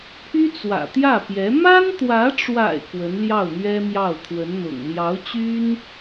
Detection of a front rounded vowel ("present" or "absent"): present